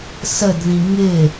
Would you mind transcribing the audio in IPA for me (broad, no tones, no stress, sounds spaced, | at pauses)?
s ə d ð ĩ ŋ ɪ